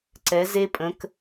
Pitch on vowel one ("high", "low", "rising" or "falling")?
rising